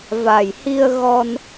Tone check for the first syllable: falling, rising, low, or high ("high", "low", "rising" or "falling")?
low